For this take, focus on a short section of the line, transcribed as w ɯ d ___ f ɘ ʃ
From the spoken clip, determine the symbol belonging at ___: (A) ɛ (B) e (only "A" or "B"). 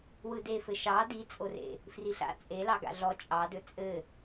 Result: B